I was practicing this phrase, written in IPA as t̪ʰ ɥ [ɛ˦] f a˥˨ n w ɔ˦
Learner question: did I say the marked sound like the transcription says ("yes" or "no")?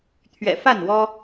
no